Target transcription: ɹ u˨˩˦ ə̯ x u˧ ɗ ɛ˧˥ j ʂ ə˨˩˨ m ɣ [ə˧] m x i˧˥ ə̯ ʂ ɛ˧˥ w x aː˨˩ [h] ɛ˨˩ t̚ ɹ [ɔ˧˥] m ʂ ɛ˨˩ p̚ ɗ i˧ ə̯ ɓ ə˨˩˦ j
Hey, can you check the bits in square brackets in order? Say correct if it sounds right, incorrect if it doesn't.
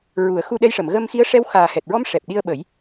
correct, correct, correct

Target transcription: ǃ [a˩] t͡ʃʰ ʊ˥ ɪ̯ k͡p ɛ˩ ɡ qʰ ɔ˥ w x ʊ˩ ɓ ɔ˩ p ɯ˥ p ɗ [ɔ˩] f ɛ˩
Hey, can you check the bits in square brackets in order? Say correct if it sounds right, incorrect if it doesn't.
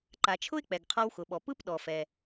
correct, correct

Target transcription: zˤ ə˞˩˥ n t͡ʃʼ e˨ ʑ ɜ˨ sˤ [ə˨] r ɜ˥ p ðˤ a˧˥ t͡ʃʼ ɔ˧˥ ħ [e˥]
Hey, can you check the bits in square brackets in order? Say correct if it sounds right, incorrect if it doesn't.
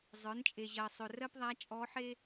incorrect: ɵ˨, correct

